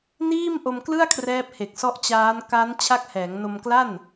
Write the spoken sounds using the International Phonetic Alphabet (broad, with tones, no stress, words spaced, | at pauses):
niː˥˩mʔo˧mklɯ˥˩a̯ kʰrɛː˦˥p̚he˨˩k̚ sɔ˦˥ʔt͡ɕaː˦˥n ka˦˥n t͡ɕʰa˦˥k̚hɛː˩˦ŋno˧m kla˥˩n